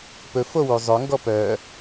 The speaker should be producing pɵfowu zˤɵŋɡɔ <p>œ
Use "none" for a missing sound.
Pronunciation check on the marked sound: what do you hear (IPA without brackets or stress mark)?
p